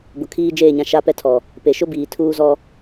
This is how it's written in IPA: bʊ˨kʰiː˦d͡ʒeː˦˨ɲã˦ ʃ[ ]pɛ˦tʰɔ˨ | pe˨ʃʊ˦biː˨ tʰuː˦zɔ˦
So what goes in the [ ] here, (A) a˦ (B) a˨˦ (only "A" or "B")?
A